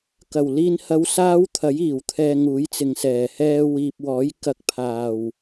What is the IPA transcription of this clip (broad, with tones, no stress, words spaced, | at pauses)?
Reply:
kɐ˨˩wliː˧nhɐ˧w saː˥wt̪ʰɐ˨˥jiː˨˩w t̪ʰɛː˧ŋuː˨˥jt͡sɪ˨ŋsɛː˨˩ hɛː˧wiː˨p̚wɔː˨˥j kɐ˧k̚pʰaː˨˩w